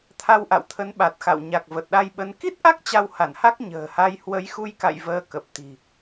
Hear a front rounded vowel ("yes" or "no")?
no